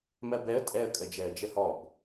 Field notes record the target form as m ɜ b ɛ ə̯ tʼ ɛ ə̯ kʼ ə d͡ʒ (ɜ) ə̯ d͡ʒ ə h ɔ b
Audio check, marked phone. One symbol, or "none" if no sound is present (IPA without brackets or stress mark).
ɛ